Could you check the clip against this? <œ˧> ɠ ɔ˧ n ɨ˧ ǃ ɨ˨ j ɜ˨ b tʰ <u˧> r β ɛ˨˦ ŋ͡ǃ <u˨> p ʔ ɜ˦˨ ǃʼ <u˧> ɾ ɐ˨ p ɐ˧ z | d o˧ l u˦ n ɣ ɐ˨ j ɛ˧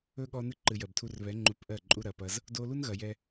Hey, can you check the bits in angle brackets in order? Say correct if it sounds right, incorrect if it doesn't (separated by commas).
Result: incorrect, correct, incorrect, correct